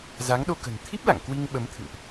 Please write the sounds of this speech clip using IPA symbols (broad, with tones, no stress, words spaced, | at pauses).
za˨˦ŋɗo˧kə̤˨˩n t̪ʰi˦˥p̚la̰˧˨ŋ kwi˧ŋɓə˨˦mt̪ʰɨ̰˧˨ŋʔ